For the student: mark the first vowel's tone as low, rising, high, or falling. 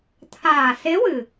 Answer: low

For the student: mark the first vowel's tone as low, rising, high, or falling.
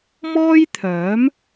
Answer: high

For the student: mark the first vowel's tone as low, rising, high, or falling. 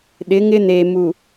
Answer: rising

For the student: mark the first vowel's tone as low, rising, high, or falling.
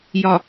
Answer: low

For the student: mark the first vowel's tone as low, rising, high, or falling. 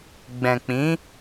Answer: low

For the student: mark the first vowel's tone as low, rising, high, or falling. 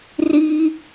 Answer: high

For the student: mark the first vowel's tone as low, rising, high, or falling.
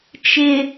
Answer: low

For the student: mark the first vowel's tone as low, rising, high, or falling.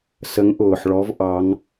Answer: rising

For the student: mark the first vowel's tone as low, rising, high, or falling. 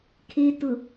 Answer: low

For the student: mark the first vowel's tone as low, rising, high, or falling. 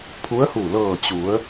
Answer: rising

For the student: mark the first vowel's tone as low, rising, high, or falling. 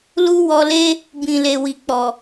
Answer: high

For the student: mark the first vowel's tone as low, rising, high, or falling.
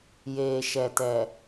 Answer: low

